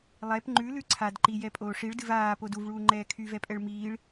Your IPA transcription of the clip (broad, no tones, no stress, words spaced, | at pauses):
lˠɛp ŋ͡ǃʉlʉ ǀʰad ǃijɛpʼoː ʂiɭdɨv aːpod uvɭuːŋ͡ǃɛː kʰyvɛpʼɛɭ miːɭ